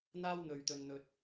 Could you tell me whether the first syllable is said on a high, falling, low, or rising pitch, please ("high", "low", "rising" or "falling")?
high